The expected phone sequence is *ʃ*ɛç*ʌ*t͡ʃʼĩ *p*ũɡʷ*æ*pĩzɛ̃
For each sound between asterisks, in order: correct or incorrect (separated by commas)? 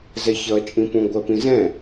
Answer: incorrect, correct, correct, incorrect